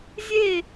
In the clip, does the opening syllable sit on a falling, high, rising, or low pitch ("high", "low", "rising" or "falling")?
falling